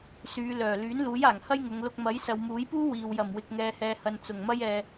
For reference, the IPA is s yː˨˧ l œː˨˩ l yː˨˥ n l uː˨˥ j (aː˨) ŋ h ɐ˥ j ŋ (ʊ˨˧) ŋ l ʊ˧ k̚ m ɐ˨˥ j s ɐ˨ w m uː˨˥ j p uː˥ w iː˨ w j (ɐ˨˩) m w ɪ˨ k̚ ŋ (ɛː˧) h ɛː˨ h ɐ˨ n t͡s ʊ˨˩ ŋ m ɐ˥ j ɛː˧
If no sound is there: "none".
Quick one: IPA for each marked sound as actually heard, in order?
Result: aː˨˩, ʊ˨˧, ɐ˨˩, ɛː˨

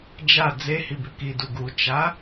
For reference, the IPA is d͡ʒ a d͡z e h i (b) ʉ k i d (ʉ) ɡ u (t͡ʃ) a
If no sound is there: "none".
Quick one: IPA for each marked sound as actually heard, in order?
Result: b, u, t͡ʃ

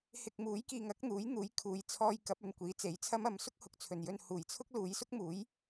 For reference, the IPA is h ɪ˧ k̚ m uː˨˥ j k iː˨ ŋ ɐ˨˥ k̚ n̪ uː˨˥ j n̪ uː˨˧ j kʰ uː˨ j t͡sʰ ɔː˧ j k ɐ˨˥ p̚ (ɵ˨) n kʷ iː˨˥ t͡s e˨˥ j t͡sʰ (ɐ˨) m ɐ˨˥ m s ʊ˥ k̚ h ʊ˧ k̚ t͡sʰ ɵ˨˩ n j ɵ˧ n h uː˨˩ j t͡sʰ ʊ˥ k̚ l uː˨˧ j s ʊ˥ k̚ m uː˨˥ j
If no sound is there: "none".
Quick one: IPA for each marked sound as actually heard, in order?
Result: ɵ˨, ɐ˥

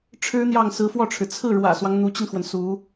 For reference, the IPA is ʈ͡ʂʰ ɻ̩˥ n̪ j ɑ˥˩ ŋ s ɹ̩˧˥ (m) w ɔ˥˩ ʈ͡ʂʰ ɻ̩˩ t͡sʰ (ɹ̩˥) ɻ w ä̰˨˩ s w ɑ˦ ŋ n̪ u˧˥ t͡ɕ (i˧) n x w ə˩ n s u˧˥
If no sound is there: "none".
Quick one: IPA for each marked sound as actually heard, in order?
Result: f, ɹ̩˥˩, i˧

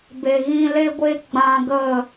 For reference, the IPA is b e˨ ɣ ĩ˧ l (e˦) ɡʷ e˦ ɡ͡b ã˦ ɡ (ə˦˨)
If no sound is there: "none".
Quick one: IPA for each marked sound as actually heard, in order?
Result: e˦, ə˦˨

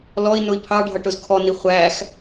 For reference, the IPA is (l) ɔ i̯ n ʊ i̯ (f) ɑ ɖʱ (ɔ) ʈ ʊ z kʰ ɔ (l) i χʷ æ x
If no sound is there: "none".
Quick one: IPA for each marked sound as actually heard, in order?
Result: l, pʰ, ʌ, n

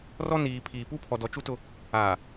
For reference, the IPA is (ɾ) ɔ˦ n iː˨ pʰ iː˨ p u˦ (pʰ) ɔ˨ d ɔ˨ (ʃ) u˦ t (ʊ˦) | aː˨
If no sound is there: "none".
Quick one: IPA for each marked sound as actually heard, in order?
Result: r, pʰ, t͡ʃ, ʊ˦

